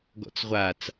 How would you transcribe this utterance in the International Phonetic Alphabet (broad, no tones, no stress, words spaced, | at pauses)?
ɡɔ̰t͡sʁʷat͡s